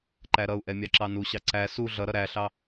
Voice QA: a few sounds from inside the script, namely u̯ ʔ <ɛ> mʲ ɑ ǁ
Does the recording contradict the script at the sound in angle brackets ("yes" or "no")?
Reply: no